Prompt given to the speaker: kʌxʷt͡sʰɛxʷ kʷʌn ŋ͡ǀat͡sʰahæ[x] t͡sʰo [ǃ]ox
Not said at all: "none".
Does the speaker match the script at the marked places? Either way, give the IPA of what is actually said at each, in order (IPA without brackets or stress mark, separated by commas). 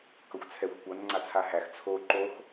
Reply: x, ǃ